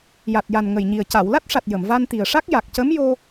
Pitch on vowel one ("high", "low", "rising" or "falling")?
low